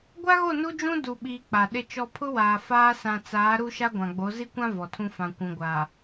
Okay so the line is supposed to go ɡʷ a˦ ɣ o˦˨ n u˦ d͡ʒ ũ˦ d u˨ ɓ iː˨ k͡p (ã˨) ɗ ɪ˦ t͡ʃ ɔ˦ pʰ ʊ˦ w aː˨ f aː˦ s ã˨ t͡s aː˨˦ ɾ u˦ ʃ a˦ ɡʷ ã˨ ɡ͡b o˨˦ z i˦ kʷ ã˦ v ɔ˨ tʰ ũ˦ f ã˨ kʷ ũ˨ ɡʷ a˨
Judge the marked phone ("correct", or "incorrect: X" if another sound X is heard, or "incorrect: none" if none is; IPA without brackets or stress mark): incorrect: a˨